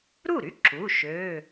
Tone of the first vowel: falling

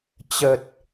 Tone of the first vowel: low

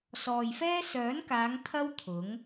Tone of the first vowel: low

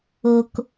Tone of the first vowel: low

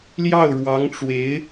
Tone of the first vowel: falling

